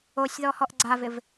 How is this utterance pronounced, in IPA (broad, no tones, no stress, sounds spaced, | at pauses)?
o sʲ ð ɔ h ɔ ʔ ɡ͡ǀ a v ɪ v